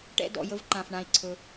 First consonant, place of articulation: retroflex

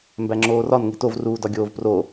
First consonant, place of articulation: labial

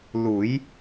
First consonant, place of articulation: alveolar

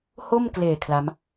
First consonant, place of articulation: glottal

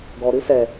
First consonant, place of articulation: velar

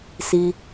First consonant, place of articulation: alveolar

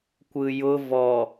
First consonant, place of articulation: velar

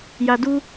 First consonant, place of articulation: palatal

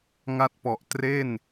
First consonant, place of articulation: velar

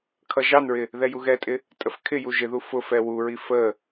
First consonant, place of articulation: velar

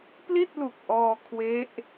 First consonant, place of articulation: labial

